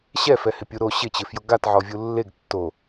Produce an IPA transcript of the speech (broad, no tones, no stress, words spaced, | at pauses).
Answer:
ɕɛfɛhɪ pʲu ɾo ɕɪt͡ɕɪfjʊ ɡatʕɔvʲu lːeɡ tːo